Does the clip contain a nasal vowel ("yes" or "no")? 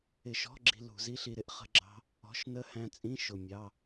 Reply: yes